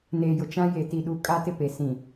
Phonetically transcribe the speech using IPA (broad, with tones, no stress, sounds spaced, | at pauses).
n eː˨ j ʊ˨ t͡ʃ ã˦ j e˨ t i˨ ɗ u˨ kʼ a˦ t ɪ˦ p e˨ s ĩ˨